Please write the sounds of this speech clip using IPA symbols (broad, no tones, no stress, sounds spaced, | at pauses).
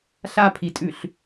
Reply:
ɬ a pʰ i tʼ ʉ ɬ